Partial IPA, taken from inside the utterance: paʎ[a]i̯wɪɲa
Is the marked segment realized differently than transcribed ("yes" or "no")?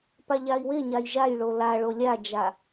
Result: no